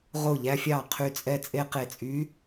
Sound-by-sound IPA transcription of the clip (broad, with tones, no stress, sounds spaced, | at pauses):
ʁ o˧˩ ʎ æ˧ fʲ ɑ˧˩ qʰ y˧˩ t͡sʼ ɛ˧ t͡sʼ e˧ q e˧˩ t͡sʼ y˧˥